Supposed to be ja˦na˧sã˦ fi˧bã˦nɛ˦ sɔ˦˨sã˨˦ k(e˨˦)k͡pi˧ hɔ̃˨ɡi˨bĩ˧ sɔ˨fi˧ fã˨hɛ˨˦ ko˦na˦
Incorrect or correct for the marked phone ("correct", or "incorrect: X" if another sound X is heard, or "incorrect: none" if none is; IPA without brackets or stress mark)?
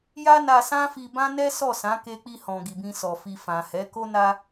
incorrect: e˧